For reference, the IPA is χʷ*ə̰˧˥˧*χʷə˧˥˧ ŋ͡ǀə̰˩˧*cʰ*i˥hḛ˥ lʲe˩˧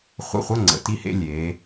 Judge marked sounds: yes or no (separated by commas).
yes, no